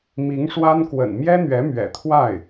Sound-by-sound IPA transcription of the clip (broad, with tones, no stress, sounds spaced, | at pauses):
m i˧˥ ŋ ʂ w a˥ n k w ə̰˨˩ n m j ɛ˥ n̪ ɥ ɛ˧˥ m ɥ ɛ̰˨˩ t̪ʰ w a˥˩ ɪ̯